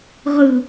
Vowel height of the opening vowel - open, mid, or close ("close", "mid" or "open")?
close